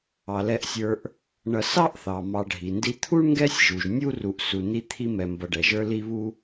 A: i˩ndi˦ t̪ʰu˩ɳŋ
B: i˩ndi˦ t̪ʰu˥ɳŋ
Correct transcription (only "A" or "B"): B